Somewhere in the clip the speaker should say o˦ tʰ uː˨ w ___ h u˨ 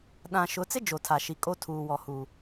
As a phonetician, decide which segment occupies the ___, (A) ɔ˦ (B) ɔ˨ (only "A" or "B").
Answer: B